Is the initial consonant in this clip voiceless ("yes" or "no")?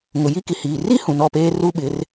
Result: no